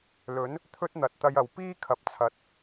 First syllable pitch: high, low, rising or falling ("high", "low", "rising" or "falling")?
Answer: rising